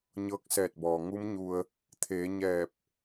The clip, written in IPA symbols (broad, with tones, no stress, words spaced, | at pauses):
ɲɤː˧k̚sɛː˧˩t̚bɔː˩ ŋu˧˥mɲu˧ə̯ | t̪ʰeː˩˧ ɲɛː˧˩p̚